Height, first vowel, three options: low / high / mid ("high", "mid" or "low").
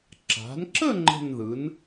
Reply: low